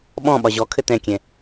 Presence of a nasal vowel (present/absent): present